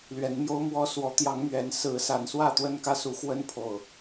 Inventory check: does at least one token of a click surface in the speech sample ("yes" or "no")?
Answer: no